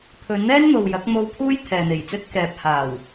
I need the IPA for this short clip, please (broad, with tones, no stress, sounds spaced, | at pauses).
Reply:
pʰ ɵ˨˧ n n̪ ɛː˥ n n̪ o˨ w j ɐ˨˥ k̚ m o˧ w pʰ uː˥ j t̪ʰ ɛː˨ n̪ e˨˩ j t͡s ɵ˥ t̚ k ɛː˨ p̚ h aː˨˩ w